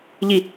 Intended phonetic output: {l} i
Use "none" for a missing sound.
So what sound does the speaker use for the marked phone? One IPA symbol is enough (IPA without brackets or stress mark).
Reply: ʎ